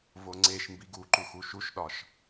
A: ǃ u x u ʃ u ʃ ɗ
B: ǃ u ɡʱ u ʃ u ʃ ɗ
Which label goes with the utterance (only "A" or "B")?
A